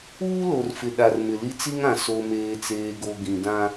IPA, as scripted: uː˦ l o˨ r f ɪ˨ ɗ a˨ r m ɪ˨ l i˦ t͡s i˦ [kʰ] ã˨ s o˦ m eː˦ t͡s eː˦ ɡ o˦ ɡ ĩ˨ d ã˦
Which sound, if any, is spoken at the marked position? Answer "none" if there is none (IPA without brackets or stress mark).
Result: ŋ